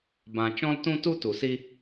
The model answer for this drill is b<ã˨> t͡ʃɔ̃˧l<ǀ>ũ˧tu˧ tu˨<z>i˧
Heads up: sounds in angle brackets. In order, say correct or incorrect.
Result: correct, incorrect, incorrect

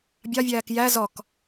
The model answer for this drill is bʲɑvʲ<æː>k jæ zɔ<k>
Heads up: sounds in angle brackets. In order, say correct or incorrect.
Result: correct, correct

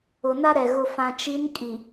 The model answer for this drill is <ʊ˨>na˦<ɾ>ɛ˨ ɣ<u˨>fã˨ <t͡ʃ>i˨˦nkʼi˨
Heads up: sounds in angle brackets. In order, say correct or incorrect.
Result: correct, correct, incorrect, correct

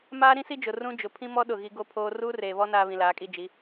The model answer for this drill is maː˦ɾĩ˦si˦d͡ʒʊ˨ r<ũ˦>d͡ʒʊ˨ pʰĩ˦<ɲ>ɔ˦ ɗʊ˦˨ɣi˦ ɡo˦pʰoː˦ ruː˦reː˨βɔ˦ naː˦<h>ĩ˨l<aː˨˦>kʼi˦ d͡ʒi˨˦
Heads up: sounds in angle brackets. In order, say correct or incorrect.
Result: correct, incorrect, incorrect, correct

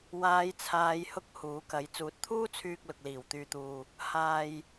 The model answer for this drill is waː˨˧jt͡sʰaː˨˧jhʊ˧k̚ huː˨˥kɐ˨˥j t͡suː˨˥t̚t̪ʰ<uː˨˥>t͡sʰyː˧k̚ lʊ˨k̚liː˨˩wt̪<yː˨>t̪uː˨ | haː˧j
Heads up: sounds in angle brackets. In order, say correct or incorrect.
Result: incorrect, correct

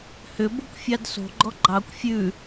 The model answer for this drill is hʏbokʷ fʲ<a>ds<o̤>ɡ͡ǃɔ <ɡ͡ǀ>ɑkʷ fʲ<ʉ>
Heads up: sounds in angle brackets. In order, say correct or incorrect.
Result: incorrect, correct, incorrect, correct

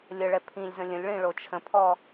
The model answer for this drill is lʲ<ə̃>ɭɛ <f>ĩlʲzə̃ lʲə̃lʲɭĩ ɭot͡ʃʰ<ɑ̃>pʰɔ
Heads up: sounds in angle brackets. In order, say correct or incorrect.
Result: incorrect, incorrect, incorrect

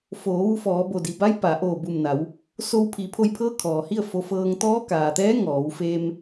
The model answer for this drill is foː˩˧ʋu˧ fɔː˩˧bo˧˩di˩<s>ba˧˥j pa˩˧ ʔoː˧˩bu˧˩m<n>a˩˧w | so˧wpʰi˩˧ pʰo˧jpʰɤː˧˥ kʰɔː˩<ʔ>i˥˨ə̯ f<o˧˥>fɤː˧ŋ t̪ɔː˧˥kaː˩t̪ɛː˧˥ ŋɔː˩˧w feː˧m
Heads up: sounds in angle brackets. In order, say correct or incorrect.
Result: incorrect, correct, incorrect, incorrect

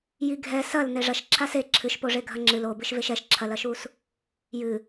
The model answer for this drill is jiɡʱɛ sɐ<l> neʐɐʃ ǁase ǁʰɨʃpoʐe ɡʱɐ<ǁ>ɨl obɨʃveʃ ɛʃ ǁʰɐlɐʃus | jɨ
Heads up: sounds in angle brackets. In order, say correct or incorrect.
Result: correct, incorrect

